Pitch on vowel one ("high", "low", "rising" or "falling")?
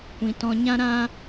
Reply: low